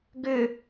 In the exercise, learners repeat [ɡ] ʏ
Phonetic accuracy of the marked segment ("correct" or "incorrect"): correct